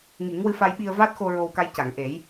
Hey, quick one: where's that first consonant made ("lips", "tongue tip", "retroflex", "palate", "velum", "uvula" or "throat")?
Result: velum